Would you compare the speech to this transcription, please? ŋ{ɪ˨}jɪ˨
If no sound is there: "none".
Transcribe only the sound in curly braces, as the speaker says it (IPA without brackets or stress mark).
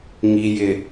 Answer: i˨